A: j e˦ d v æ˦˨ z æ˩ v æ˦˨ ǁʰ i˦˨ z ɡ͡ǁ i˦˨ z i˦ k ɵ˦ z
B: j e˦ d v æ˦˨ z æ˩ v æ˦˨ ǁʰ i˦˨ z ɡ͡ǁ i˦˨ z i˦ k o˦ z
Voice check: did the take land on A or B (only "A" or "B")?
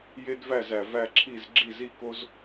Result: B